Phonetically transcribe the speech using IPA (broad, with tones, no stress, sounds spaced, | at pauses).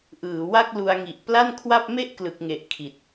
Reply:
ʔ ɯː˩˦ w a˥˩ k̚ l u˧ a̯ ŋ i˨˩ ʔ p l a˥˩ n kʰ w a˥˩ p̚ m e˥˩ ʔ k l ɯ˨˩ k̚ ŋ e˨˩ ʔ kʰ i˨˩ t̚